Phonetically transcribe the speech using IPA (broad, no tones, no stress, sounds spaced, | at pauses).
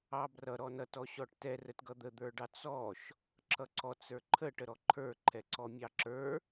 ɑ b r ʌ ɾ ɔ n ʌ t ɔ ɕ ɔ ʈ t ɛ r ə t ɡ ʌ d̪ ə d̪ ə˞ ɖ ɑ t͡s ɔ ʃ | ǁ ʌ ǀ ɔ t͡s ə˞ ǃʰ ə ʈ ə ɾ ɔ ǃʰ ə˞ ǃʰ ɛ ǀ ɔ mʲ ɑ ǁ ə˞